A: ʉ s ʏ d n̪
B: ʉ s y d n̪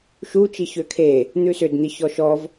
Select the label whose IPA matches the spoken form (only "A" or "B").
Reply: A